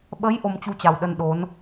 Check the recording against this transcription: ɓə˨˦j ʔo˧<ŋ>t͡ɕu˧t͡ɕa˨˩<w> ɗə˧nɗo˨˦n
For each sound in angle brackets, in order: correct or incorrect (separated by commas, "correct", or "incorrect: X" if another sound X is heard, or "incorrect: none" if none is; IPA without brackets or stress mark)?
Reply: incorrect: m, correct